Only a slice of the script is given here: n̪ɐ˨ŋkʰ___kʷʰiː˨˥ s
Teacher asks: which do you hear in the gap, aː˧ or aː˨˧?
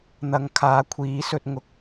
aː˨˧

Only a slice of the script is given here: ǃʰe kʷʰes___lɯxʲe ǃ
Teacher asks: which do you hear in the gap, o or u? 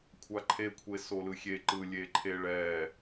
o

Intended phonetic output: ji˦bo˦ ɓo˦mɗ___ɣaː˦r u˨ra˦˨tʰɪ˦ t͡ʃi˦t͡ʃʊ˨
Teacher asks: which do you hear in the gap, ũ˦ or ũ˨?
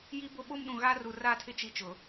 ũ˨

